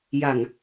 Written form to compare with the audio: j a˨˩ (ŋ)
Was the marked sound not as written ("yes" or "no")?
no